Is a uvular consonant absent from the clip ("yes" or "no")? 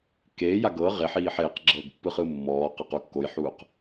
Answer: no